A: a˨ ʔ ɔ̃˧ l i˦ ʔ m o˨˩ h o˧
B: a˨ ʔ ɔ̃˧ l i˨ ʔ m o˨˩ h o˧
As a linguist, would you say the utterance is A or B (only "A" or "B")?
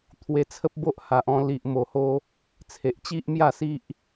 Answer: B